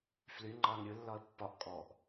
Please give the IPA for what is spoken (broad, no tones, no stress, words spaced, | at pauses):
fly ŋ͡ǃɑŋ ɾʲɯlːɒə̯ pːɒʔ kʼɔʔ